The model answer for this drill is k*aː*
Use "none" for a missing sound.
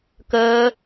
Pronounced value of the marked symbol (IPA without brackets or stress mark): əː